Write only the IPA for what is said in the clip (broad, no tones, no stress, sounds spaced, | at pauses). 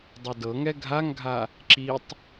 dˤ o d ɤ ŋ ɛ ɡʱ a ŋ ɡʱ a | ǁ i tˤ